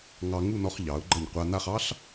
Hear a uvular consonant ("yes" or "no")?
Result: yes